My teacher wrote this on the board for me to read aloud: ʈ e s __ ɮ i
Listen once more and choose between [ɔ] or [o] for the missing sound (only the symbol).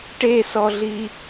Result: ɔ